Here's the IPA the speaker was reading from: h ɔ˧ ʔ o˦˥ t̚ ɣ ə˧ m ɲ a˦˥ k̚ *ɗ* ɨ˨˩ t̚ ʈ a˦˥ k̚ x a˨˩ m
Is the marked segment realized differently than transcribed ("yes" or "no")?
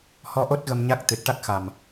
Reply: yes